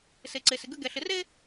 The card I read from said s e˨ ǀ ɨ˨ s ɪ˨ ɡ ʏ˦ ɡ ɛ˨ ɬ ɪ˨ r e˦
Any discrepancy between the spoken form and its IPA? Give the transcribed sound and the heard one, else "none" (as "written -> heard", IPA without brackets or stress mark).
ɨ˨ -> e˨